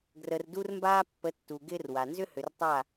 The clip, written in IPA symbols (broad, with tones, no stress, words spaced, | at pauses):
ɡrə˨rdu˦rmbaː˦ pːə˨˦ tːu˨ɡɪː˦rwa˨ nzʏ˦hʏ˨rtˤa˦˨